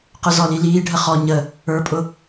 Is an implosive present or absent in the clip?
absent